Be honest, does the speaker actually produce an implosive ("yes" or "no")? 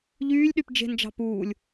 yes